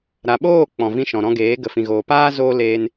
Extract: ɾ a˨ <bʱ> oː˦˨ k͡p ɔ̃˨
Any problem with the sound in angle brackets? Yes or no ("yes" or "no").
yes